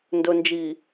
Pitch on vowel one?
low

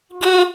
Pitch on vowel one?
high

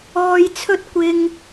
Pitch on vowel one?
low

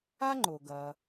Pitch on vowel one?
high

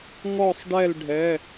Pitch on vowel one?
falling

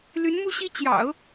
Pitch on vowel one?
rising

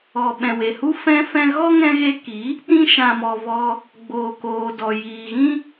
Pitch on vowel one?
low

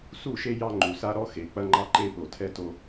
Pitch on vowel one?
falling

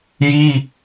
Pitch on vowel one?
high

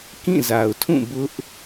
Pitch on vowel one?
falling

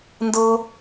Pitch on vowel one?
high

